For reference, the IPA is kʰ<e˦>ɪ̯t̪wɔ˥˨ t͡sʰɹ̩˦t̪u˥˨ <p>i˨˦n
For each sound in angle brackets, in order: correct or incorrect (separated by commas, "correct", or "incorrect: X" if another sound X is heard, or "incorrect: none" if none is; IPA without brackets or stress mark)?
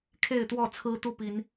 incorrect: e˥˨, correct